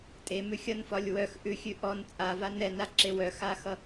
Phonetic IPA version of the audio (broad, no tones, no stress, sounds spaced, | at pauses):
tʼ e m ʉ xʲ ʌ n f ɒ lʲ w œ x ʔ ʉ xʲ ʉ ʔ ɔ n t͡sʼ a v a n ɛ n a ǁ e w œ x a x ʌ